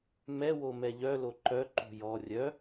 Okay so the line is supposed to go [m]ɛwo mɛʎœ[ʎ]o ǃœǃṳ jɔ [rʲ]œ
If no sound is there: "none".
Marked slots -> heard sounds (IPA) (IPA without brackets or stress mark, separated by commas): m, l, rʲ